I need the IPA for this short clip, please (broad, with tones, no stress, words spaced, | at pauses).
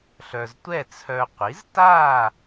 ɬœ˨ztʷɛ˥˨ t͡sʰœ˨qʷi˩˥zta˥˨